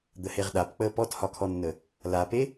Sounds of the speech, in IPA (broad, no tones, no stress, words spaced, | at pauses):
d̪əheʁɗapk͡pəː pɔthɒkʰɔnːə | lape